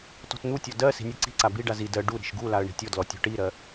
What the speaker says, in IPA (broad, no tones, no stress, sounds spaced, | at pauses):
t ɔ̤ t n̪ u tʲ ɔ d ɜ s i̤ nʲ u ǀ i̤ ǀ a b i ɖ a z i d ɜ ɖ u ɾ i̤ ʃ ɡ u l a ə̯ ɳ i̤ tʲ ɔ d l ɔ tʲ ɔ̤ ʈ i ɾ ɜ